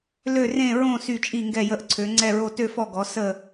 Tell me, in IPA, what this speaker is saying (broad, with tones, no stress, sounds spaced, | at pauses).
l ø˥˧ r ẽ˥˧ ɹ õ˥˧ s y˥˧ t͡ʃʼ i˥˧ ŋ ɡ ɛ˥˧ j ə˥˧ ʔ ǀʰ ø˧˥ ŋ͡ǀ ɛ˥˧ ɹ o˥˧ t ø˥˧ f ɔ˥˧ ɡ ɔ˧˥ s ə˥˧